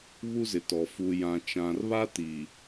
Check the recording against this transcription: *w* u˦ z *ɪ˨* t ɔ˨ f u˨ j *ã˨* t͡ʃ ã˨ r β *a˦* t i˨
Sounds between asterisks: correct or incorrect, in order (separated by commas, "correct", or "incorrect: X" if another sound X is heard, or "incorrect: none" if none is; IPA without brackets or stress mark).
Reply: incorrect: β, correct, correct, correct